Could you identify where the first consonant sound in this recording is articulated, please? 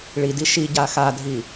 retroflex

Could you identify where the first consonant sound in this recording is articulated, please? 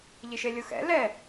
palatal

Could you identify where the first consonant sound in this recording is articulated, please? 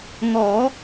velar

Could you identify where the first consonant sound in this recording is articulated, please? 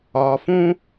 labial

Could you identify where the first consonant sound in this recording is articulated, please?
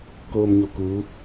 velar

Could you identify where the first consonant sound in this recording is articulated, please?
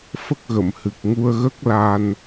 labial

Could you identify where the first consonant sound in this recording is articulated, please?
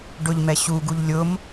retroflex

